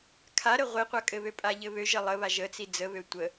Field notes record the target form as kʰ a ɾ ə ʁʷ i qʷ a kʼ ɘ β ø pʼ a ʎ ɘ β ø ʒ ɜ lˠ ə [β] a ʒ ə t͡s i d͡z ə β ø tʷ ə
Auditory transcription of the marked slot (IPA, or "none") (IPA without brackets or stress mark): β